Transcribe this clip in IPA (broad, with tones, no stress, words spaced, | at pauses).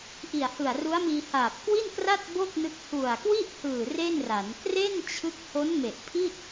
ʔi˨˩a̯hɯ˨˩a̯ru˦˥a̯miː˧ haː˨˩p̚kwi˥˩nkra˥˩t̚ bo˥˩k̚nɯ˦˥k̚ hu˨˩a̯kwi˥˩ʔhɯː˨˩ re˥˩nra˩˦n kre˥˩nt͡ɕʰɯ˦˥k̚ ho˦˥nme˨˩ʔ pʰi˥˩t̚